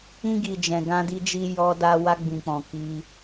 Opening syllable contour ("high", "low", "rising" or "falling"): high